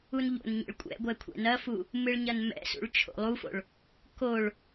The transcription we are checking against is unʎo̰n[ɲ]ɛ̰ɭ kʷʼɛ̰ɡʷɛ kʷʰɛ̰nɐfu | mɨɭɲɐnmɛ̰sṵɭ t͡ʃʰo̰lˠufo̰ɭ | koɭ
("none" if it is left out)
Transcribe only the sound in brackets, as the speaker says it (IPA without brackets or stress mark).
ɲ